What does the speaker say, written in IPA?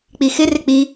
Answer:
k͡p i x ɪ r ɪ k͡p i

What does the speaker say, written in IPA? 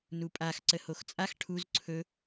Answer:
n u pʼ a x ǀ ə h o x t͡sʼ a x ʈʰ u z ǀʰ ɵ

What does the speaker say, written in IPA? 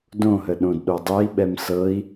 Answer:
d õ ɦ ə ɗ õ d ɗ o dˤ ɛ i̯ ɓ ɛ m s ɤ i̯

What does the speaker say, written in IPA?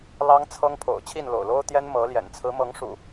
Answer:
l ɑ˦ ŋ t͡sʰ ɤ˦ ŋ pʰ o̰˨˩ ʊ̯ t͡ɕʰ i˥˨ n l o̰˨˩ ʊ̯ l o˦ ʊ̯ t̪ j ɛ˦ n m ɤ˨˦ l j ɛ̰˨˩ n t͡sʰ ɹ̩˨˦ m ɤ˨˦ ŋ ʂ ṵ˨˩

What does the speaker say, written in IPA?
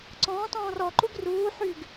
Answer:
ǀ ɔ̃ː t ɔ̃ː r ɔ ǃ u ɡ r uː ħ y ɡ

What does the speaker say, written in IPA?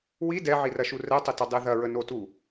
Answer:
w i d ɛ ʕ i r ɐ ʃ u r ɛ tˤ ɘ t ɐ dˤ e ð ɐ ɹ ə n o t u

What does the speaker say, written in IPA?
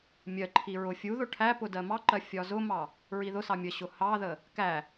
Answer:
mʲ ɜ ǃʰ i ɹ ʊ fʲ u ð ʊ ʈʰ æ p ʊ d ɜ m ɑ ǃ ɜ fʲ ɒ z ʊ m ɑ | ɹ i ð ʊ s ɑ mʲ ə ɕ ʊ h ɑ ð ə | k æ

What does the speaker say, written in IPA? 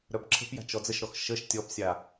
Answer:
ɾ œ b ǁʰ ə̤ p j a̤ t͡ʃ ɔ d͡z ə ʃ ɾ ɔ x ʃ ə ʃ tʲ ɔ p sʲ a

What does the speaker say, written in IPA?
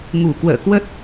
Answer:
ŋ u˧˩ k w ə̰ː˧˨ k w ə˦˥ t̚

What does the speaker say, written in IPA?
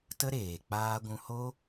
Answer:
t ə˦ ɾ eː˨ k͡p aː˦ ɡʷ ũ˧ h o˦

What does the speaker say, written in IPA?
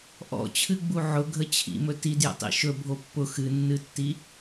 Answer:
ʔ ɔ̰ t͡ɕʰ ɨ ɡ͡b u ʕ ʊ ɡʱ ə t͡ɕʰ ḭ m ɵ t i d j ə̰ tˤ ḭ ʃ ɵ bʱ o pː ʊ x ɨ nː ɨ tː i

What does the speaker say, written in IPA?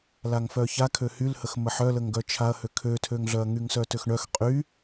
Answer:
l a ŋ f œ ç a kʰ ø h y l h ə x m ə ħ œ l ə ŋ ɡ œ t͡ʃʰ a ɐ̯ h ø kʰ ø tʰ ø ŋ ɮ œ ɐ̯ ŋ y ŋ s œ t ø x ɳ œ x qʼ y

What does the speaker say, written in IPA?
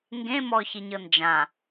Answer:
ŋ ɡ ẽ m ɔ ç i ɲ ɤ n d͡ʒ ã

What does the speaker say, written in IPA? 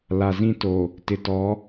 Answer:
l a˨ z ĩ˦˨ t o˨ | t ɪ˨ t ɔ˨˦

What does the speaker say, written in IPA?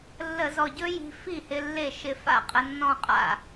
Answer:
lː ə˧˩˧ z ɔ˨˩ ɟ ɵ˥ j i̤˧ f i˥˩ h ɪ˧ lː e˥˩ ʃ ɪ˧ f a̰˥˩ qʼ ə˧ nː ɔ̃˥˧ qʼ a̰˥˩

